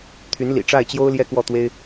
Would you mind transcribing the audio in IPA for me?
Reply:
t̪ʰ y˧˥ n l ḭ˨˩ ʈ͡ʂ a˥˩ ɪ̯ t͡ɕ j o˥ ʊ̯ l j ɛ˥ k w ɔ˥˩ t̪ w e˥ ɪ̯

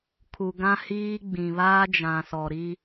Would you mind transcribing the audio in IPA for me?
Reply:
kʰ u˨ ɡ ã˦ h iː˦ ɡ͡b ĩ˨ β aː˦ d͡ʒ ã˨ s ɔ˨ ɾ i˦

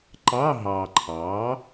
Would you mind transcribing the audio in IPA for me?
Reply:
ǃ ɑ˧˥˧ ɦ ɑ˨ ǃʰ ɑ˩˥

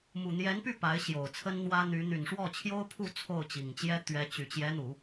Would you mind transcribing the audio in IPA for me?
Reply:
m u˨˩ n̪ j ɛ˧˥ n p y˥˩ p a˧˥ ɪ̯ ɕ j o˨˩ ʊ̯ t͡sʰ ə˥ n n̪ w ä˥ n̪ y˧˥ n̪ y˨˩ n ʂ w ɔ˥˩ t͡ɕʰ j o˥ ʊ̯ pʰ u˥˧ t͡sʰ o˥˩ ʊ̯ t͡ɕ i˨˩ ŋ t͡ɕ j ɛ˥ t̪ ɥ ɛ˧˥ t͡ɕ y˨˩ t͡ɕ j ɛ˧˥ n̪ u˨˩˦

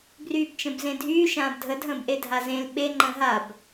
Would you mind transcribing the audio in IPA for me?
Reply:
b r yː b t͡ʃ ə̃ b z ẽ dʱ yː ʃ ãː b dʱ ə dʱ ə̃ː b ʔ e dʱ a z ẽ l ɓ e ŋ͡ǃ ə̃ː ɦ a b

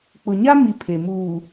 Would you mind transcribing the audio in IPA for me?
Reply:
k͡p ʊ˨ ɲ a˦ m i˨ pʰ e˨ m uː˨

